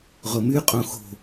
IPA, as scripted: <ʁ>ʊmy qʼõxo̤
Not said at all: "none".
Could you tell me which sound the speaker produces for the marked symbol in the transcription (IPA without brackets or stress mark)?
ʁ